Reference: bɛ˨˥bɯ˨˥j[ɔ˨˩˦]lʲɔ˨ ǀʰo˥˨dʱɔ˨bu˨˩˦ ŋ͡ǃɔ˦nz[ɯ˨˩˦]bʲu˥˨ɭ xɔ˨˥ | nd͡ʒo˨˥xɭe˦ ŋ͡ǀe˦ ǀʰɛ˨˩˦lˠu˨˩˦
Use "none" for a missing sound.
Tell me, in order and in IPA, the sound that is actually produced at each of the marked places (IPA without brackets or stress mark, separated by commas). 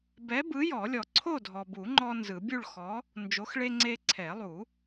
ɔ˨˩˦, ɯ˨˩˦